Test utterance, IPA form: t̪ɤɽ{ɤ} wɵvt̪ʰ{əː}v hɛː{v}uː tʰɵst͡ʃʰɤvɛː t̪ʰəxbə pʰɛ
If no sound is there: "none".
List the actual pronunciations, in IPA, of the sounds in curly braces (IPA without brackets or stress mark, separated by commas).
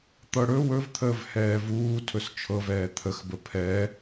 ɵ, əː, v